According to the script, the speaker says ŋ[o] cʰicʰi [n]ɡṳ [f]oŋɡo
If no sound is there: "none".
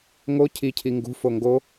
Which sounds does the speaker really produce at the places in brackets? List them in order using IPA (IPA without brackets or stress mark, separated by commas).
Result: o, ŋ, f